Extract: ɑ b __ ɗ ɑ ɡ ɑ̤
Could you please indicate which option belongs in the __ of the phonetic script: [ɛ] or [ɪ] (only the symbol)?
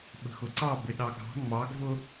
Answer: ɪ